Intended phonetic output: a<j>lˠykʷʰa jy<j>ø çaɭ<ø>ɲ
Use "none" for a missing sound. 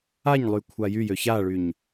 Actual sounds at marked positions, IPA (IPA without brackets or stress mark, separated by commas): ɲ, j, y